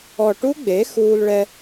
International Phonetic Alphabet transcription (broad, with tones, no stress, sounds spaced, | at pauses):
ɔ˨˩ ʈ u˦˥ ɡ͡b e˩˥ x uː˧ l ɭ ɛ˧